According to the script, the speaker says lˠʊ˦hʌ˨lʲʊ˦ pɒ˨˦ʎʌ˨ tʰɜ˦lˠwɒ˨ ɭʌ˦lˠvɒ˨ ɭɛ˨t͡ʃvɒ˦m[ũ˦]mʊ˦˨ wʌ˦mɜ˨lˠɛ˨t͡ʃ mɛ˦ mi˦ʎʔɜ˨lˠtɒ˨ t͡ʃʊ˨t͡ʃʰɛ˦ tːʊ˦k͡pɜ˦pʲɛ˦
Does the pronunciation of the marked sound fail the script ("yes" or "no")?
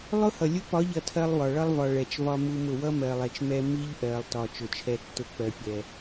yes